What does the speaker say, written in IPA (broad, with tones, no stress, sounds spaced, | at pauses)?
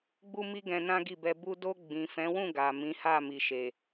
ɡ͡b u˦ m i˦ ɡ ɛ̃˧ n ã˦ ɡ i˦˨ b ɛ˧ b u˧ d o˧ ɡ͡b ĩ˨ f ɛ̃˨˦ w ũ˦˨ ɡ a˨ m ĩ˨˦ h a˦˨ m i˨ ʃ e˨